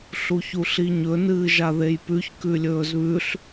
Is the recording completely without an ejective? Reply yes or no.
yes